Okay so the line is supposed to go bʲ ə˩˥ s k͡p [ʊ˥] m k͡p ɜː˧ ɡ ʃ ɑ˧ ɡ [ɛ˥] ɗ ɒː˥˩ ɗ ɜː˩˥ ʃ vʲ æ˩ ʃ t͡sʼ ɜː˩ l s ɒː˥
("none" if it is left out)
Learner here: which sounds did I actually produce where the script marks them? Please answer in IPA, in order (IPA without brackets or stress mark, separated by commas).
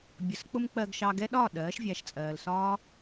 ʊ˥, ɛ˥